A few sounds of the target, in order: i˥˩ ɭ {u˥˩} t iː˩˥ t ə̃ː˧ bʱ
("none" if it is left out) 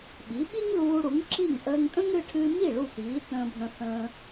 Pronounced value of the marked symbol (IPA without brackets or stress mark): u˥˩